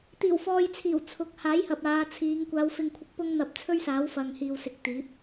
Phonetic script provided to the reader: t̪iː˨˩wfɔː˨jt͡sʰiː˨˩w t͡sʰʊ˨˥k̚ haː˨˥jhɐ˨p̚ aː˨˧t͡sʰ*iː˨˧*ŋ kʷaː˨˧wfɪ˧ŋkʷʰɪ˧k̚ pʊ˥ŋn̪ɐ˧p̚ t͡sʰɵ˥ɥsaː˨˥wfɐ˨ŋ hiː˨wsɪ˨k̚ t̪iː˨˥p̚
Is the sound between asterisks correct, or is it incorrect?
correct